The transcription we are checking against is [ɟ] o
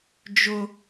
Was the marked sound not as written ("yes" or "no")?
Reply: yes